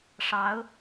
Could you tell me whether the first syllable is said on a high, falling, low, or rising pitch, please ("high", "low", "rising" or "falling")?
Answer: rising